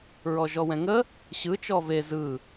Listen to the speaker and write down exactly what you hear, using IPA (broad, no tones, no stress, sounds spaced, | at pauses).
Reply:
ɹ ɔ ʒ ɔ w ɛ̃ ŋ ə | ɕ ɯ t͡ʃ ɔ v e z ɯ